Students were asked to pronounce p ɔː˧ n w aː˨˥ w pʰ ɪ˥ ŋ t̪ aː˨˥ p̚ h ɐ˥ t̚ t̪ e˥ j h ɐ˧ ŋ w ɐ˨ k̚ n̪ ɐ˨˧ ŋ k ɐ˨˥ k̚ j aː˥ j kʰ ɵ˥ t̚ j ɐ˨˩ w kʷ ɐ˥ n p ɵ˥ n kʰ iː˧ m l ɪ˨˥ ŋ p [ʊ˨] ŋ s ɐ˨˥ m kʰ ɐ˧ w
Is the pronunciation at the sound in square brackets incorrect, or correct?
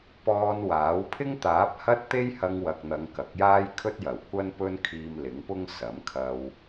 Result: incorrect